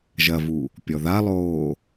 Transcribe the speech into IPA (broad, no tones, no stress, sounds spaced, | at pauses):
ʒ ɐ v u | pʲ ɔ ð a lˠ oː